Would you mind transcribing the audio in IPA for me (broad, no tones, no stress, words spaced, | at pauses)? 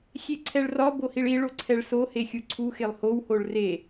xʲeǀʰɛɭrɒ bohiɭi ɭoǀʰɛɭso hexʲuǀʰu xelˠhow hoɭre